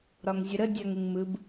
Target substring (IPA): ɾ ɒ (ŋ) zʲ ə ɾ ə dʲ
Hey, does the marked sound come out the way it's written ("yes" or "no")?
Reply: yes